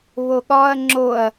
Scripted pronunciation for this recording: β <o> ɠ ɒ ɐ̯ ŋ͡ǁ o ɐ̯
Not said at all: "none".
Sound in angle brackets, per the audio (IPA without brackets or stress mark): o